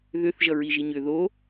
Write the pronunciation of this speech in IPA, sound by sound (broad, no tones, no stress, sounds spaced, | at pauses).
ð ʏ θ ʒ ʌ ɹ i ʒ i ɲ ʏ ð o